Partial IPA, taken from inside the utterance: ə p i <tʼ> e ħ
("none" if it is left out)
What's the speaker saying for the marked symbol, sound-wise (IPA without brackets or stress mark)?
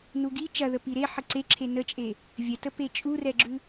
ɾ